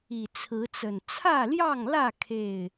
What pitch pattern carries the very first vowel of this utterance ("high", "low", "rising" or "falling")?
low